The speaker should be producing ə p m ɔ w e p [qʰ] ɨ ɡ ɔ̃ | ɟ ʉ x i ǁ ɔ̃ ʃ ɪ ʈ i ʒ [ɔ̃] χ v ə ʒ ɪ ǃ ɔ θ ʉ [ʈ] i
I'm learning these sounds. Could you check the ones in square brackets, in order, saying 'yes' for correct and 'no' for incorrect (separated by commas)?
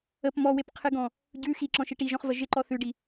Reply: yes, yes, no